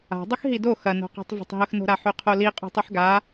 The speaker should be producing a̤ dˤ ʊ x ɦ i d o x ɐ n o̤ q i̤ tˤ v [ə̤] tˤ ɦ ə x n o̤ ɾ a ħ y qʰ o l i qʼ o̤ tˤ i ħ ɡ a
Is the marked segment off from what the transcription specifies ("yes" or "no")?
no